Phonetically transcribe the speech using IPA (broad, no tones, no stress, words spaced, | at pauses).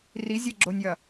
rizʲeɡ͡ǁonʲjɐ